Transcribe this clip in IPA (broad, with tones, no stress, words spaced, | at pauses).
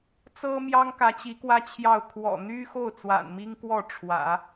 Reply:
t͡sɤ˥mjɑ˥ŋkä˧˥ t͡ɕi˧˥kwä˥t͡ɕʰjɑ˥˩ʊ̯ kʰwɔ̰˨˩n̪y˥xo˥˩ʊ̯ t͡swa̰˨˩nmi˥ŋkwɔ˥˩ ʈ͡ʂʰwä̰˨˩˦